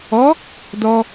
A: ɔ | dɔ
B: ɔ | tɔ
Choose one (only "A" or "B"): A